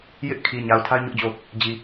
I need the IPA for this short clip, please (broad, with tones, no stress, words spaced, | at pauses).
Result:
jɪ˦ʔ kʰi˨ɲa˨ʊ̯ tʰa˦ɪ̯ɲʊ˦ʔd͡ʑo˦˨ | d͡ʑi˨